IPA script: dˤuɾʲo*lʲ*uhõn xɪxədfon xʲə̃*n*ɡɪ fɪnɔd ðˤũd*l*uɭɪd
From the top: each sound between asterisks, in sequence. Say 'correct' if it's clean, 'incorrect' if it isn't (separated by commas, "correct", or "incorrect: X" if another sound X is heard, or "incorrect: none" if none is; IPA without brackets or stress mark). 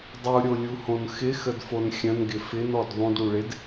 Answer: correct, correct, incorrect: ɽ